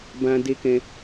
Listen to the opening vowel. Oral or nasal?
nasal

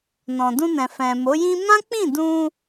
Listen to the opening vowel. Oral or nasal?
nasal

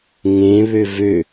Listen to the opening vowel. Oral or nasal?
nasal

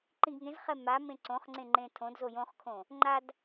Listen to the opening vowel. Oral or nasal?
nasal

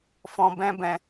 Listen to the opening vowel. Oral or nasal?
nasal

